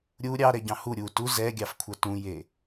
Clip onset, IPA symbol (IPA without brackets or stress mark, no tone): ɾʲ